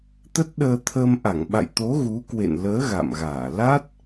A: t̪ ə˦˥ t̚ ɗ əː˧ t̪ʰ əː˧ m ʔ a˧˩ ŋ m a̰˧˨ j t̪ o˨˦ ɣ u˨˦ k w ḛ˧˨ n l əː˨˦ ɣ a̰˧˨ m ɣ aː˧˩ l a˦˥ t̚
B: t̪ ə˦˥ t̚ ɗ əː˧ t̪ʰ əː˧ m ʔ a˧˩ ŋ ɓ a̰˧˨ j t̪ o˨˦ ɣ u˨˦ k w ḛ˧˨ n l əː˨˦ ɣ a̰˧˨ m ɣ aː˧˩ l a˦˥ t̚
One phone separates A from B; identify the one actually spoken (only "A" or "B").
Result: B